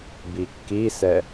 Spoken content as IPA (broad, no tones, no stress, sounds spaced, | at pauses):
b i kː i s ɛ